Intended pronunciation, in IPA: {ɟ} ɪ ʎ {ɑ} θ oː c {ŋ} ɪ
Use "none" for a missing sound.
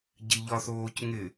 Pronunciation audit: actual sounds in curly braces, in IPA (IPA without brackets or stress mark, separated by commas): ɟ, ɒ, ŋ